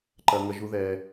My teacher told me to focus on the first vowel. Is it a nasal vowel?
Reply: no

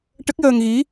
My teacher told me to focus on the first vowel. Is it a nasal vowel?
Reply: no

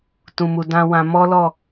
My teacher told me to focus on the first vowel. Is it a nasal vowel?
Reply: yes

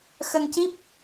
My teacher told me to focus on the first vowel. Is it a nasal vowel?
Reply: no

